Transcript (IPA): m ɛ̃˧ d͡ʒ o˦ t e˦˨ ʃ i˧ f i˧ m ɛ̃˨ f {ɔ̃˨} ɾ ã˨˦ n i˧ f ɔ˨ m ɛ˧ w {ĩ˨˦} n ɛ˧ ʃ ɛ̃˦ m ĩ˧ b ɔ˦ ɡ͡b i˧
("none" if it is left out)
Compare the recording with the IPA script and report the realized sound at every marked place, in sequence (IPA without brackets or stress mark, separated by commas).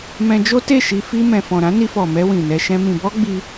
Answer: ɔ̃˨, ĩ˨